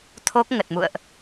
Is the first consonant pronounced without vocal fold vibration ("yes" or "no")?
yes